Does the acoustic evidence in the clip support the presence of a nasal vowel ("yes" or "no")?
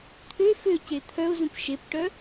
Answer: yes